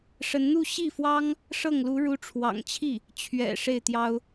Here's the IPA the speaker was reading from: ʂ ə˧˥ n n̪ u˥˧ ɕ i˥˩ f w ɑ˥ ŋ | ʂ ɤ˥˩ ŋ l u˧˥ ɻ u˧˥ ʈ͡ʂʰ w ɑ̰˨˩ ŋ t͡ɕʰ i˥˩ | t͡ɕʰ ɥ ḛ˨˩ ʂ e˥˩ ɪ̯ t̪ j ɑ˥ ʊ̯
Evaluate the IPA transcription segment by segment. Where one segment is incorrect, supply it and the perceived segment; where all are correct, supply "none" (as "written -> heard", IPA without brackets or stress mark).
ḛ˨˩ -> ɛ̰˨˩